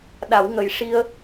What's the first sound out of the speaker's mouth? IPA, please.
ɗ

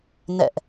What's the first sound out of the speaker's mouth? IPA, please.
n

